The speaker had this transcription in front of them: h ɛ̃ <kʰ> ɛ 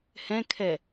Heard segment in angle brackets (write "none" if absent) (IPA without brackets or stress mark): kʰ